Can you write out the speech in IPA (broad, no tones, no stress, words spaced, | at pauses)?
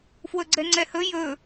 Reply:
fwɵɡ͡ǀɛŋ͡ǀɛhɵ jɵ